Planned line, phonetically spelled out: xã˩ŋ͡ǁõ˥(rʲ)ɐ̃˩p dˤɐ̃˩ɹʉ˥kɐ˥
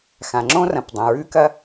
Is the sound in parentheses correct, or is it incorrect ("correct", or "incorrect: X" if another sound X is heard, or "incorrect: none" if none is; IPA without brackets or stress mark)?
incorrect: r